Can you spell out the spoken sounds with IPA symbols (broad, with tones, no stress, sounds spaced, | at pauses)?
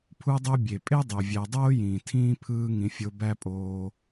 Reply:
pʰ u˥ dˤ o˥ bʲ e˩ pʼ e˥ dˤ ø˩ vʲ æ˨ dˤ oː˥ j ĩː˩ tʰ ĩː˥ pʰ ɯː˦ ŋ ĩ˩ fʲ o˨ b æ˦ pʼ oː˨